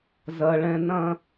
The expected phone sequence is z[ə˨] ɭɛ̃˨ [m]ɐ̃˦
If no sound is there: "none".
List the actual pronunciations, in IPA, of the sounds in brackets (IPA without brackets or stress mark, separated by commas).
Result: ɐ˨, n